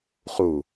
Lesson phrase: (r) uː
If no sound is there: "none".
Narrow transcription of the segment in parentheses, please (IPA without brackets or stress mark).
χ